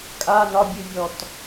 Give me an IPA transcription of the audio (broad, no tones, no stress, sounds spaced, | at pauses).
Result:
kʼ a n ɒ bʲ ɨ vʲ ɔ t